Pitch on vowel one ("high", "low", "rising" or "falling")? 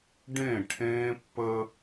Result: falling